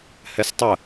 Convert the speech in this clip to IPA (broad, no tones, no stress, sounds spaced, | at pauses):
h ɛ s tˤ ə